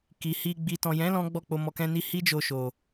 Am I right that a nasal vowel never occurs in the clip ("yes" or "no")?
no